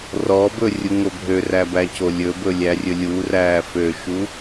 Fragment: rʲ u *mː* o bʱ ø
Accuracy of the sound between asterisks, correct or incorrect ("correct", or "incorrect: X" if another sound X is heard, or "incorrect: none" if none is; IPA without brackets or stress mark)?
incorrect: ŋ